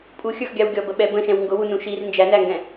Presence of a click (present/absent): absent